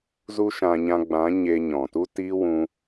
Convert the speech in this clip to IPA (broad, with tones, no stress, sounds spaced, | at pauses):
z u˦ ʃ ã˧ ɲ ã˧ ɡ͡b ã˨˦ ɲ e˧ ɲ ɔ̃˨ t u˦ t iː˦ w ũ˦